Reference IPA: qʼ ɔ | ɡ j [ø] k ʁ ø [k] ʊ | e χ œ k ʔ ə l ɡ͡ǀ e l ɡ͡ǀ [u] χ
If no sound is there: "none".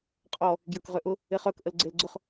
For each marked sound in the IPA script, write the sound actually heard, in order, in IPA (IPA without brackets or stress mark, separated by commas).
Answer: ə, ʔ, ʊ